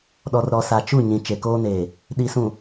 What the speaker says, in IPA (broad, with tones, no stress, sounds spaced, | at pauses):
ɗ ɔ˨ r ɾ ɔ˨ s a˨ t͡ʃ u˦˨ ɲ ĩ˨ t͡ʃ e˨ k oː˦ n eː˨ | ɗ i˨ s ũ˨